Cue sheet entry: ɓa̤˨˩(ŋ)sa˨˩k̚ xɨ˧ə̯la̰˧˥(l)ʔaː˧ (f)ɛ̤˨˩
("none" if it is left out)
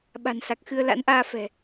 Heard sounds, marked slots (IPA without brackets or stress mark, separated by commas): n, n, f